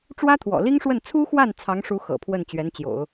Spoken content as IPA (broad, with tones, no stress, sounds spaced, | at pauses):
ʈ͡ʂ w ä˥ t̪ʰ w ɔ̰˨˩ l i˥ ŋ ʂ w ə˥˩ n t͡sʰ u˥ x w a˥˩ n t͡sʰ ɑ˧˥ ŋ ʂ u˧˥ x ɤ̰˨˩ pʰ w ə˥˩ n t͡ɕ ɥ ɛ˧˥ n t͡ɕ j o̰˨˩˦ ʊ̯